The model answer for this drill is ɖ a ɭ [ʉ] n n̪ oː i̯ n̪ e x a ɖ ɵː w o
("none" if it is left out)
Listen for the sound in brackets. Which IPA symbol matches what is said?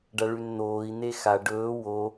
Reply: ʉ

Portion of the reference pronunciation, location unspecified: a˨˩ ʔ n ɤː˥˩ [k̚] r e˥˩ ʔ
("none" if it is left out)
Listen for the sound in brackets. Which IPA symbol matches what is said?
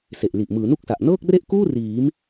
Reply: k̚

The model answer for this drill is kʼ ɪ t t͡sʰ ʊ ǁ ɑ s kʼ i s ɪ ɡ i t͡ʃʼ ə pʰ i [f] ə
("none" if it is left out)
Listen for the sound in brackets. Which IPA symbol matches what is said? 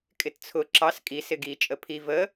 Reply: v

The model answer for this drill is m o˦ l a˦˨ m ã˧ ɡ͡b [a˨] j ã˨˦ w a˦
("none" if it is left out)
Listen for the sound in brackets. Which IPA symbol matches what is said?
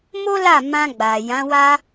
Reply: a˨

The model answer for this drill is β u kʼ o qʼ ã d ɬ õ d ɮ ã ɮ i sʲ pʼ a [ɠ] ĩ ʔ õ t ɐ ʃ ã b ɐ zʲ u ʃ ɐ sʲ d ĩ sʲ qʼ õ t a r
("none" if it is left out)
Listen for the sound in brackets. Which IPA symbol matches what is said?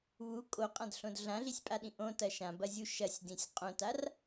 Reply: ɗ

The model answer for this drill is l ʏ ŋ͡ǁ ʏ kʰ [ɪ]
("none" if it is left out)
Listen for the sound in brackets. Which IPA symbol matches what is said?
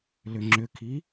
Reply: i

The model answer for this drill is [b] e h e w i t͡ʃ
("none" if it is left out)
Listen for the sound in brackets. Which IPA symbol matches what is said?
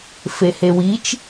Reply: f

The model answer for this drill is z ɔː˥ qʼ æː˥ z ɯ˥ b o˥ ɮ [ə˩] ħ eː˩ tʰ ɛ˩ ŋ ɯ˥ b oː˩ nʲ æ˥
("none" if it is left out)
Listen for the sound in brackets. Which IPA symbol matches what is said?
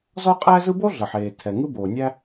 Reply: ə˩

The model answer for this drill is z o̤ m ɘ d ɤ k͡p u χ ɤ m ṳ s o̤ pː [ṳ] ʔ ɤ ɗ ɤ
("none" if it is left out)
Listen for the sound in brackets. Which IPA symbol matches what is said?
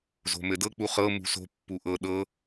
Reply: u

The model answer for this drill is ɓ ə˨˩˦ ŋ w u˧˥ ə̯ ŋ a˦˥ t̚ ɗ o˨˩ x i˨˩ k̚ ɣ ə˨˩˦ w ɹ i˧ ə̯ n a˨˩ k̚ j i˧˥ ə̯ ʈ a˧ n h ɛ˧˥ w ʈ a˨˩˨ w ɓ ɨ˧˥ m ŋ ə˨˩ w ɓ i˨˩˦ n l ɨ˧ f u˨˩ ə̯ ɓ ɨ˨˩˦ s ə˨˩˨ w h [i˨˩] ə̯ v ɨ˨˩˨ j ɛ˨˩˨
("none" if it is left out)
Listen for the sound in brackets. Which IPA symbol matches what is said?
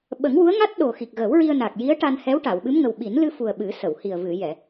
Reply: i˨˩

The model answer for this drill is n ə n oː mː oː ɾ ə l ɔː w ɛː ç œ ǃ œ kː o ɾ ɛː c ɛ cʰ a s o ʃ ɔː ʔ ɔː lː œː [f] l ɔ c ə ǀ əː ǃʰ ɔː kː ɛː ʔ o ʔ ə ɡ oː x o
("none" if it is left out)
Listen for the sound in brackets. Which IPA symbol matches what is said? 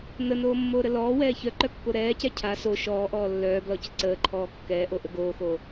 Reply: b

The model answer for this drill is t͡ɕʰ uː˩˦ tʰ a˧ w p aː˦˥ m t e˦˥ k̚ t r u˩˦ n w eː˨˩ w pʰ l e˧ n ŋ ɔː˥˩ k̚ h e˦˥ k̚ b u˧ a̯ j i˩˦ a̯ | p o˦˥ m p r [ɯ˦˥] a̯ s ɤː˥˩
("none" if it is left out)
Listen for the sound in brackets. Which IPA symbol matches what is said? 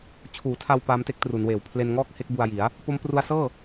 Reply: u˦˥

